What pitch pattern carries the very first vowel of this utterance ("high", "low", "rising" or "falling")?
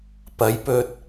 rising